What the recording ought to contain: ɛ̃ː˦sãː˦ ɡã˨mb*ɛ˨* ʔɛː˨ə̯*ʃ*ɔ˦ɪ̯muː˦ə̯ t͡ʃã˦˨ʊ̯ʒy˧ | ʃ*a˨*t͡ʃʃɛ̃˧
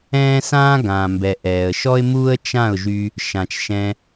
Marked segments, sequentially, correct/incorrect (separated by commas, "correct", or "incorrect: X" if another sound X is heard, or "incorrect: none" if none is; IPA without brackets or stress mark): correct, correct, incorrect: ã˨